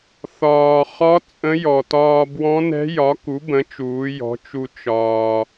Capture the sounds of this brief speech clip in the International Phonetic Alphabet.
θɒː˩χɒ˧˥ t͡sʼə̃˧˥jɔ˩tɒː˧ bwɔ̃˧˥nɛ̤˧˥jɒ˩˥ ku˩˥bə̃˩˥t͡ʃuː˩˧ jɔ̤˩˥t͡ʃu˧ t͡ʃɒː˩

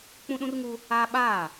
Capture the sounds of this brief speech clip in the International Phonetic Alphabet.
k͡pũ˦ɗũ˦rŋu˦ | aː˦ ɓaː˦˨

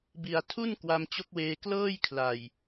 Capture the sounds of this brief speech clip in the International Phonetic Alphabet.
bi˨˩a̯tʰu˥˩n kwa˧mt͡ɕo˦˥k̚weː˧ klɤː˥˩jkʰla˨˩j

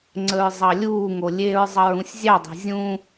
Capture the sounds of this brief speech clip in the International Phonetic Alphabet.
ŋ͡ǀəɹzˤɑlʲuːŋo lʲeɹzˤʌɹ ũsʲzʲɑdˤe̤ zʲũ

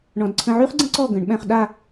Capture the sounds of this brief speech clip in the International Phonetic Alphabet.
ɳɔ̃˧d ǀʰə̃˧ʕy˥χɡ͡ǀə̃˥ ǀɔ˥˧ ɡə̃˩˧ɳɓɛ̃˧χɗa˥˧

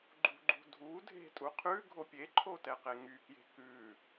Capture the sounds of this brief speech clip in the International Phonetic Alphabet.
ɡ͡ǃṳɡ͡ǃṳ dʱu dʱe̤tʼu qʰʉ ɡʱopʲeǃʰo tɛqeŋykje̤ kʉ

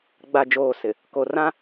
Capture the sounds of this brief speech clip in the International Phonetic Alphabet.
ɡ͡ba˨ d͡ʒoː˨sɪ˨ | ko˨rã˦

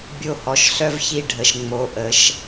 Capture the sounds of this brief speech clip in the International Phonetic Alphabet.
bʲo˦˨hɔ˨˩ʃ ɬœ˥vçi˦˨ ɖʱə˨˩ʃ ŋ͡mo˨˥ʔə˩˧ʃ

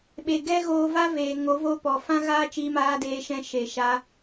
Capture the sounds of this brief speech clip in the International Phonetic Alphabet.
ɓe˨ ɡɛ˦ɣoː˧va˦ veː˨ŋo˨˦ vo˧ pɔ˨ fã˦ɣaː˦t͡ʃiː˧ maː˧deː˧ʃɛ̃˧ ʃe˨ʃa˧

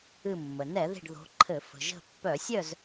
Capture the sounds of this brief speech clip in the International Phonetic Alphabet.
ɨ˧˩ mːə˩nɛ˧˩˧ði̤˧˩ɖ ðo̤˨˦ǃʰɘ˧˩˧ fə̤˩ʒə̤˧˩pːœ˧˩˧sʲœ˥˨z

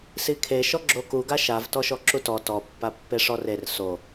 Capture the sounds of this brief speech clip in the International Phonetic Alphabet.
sikʰe ʃɔɡ͡ǁoku ɡaʃav tɔʃɔǁutɔ tɔ pːapːeʂɔrer so

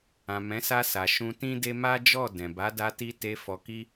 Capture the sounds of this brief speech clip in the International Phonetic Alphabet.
ã˨mɛ̃˨˦sa˧sa˨ ʃũ˧ tĩ˦de˦ ma˦d͡ʒɔ˦˨ dɛ̃˨ba˨˦da˧ti˧ te˧fɔ˧ki˦

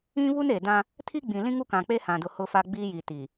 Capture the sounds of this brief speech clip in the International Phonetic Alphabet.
ĩ˦βu˦n e˨ dã˦ | tʰi˦ɡ͡bĩ˨ lĩ˦ŋu˦kã˨k͡pe˦ hã˨dʊ˨ hʊ˨fa˨ ɡ͡bi˦ji˨ ti˨

